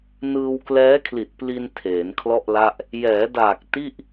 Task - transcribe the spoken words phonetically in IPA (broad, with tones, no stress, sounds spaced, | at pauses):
n ɯː˧ w k l ɛː˦˥ kʰ l i˨˩ t̚ p l i˧ n tʰ eː˩˦ n kʰ l ɔ˥˩ ʔ l a˥˩ ʔ | j ɛː˩˦ d aː˨˩ k̚ t i˥˩ ʔ